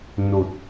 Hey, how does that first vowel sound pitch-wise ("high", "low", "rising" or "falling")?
low